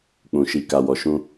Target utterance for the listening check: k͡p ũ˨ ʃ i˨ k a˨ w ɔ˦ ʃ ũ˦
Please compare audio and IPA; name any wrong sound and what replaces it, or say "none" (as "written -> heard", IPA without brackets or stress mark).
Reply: ɔ˦ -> ɔ˨